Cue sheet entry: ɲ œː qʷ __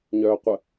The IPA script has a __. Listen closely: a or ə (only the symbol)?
ə